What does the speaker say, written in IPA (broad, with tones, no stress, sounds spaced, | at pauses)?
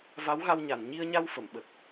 v a˧˥ w ɣ a˧ w ɲ a˨˩˨ n ɲ i˧ ə̯ ɲ a˧ w f ə˨˩˨ m ɓ ə˨˩ k̚